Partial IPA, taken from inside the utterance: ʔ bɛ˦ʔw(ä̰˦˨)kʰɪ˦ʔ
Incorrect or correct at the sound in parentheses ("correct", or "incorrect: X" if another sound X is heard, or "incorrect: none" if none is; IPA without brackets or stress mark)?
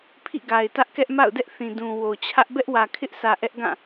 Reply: incorrect: ä˨